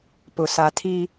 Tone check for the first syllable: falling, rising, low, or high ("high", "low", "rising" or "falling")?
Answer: low